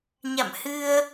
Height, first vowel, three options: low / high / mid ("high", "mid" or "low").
low